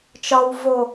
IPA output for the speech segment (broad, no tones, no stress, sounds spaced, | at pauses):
t͡ʃ ɒ w v o